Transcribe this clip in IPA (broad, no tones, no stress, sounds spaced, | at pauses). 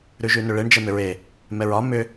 ɾ ʉ ʒ ʉ n ʏ ɭ e ɳ d͡ʒ ɛ m ʏ ɹ e | m ɛ ɹ ɒ m ʏ